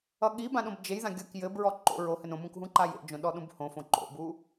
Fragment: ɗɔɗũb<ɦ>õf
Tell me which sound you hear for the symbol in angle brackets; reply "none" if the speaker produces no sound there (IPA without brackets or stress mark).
h